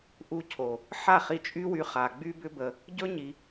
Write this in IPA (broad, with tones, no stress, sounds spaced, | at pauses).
ʔ u˧ cʰ o˨ | ħ a˦˨ χ i˧ t͡ʃʼ y˦ w y˧ χ a˧ ɡ͡b y˦ b ʏ˦ b ə˧ | ɟ ɵ˦ ɲ i˧